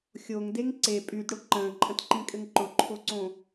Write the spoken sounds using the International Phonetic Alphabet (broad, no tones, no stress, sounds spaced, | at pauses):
xʲ o ŋ d e ŋ ǀ e pʼ y d ɽ ʊ ǃ ə̃ː ǃʼ ə̃ t ǃ ĩ kʼ ɘ ŋ ǃ ʊ ǃʰ o ǀ õ